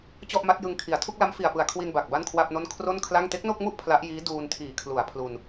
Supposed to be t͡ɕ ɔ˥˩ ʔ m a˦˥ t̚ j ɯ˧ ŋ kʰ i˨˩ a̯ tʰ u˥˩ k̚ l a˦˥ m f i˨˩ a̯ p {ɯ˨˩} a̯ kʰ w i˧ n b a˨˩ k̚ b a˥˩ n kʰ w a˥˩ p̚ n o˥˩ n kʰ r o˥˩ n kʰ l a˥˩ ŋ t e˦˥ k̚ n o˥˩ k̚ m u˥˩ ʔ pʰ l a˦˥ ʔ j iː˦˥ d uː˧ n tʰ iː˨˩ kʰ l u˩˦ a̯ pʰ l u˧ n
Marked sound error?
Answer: no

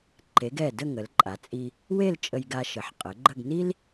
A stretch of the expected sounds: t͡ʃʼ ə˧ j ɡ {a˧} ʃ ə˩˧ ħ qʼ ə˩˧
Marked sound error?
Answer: no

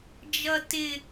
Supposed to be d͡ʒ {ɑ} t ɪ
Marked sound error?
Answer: yes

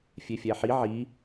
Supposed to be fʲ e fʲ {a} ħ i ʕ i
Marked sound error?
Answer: yes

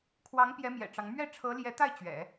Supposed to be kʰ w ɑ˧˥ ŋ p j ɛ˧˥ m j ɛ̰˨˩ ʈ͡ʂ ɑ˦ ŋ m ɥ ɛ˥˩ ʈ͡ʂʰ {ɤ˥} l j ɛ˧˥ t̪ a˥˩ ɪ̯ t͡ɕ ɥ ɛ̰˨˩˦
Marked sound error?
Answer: yes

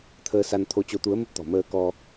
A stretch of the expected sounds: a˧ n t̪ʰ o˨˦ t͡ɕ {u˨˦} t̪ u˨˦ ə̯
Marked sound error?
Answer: yes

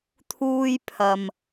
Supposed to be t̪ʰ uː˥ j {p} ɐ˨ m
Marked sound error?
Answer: yes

